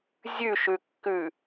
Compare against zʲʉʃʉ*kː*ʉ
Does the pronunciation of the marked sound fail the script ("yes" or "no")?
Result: no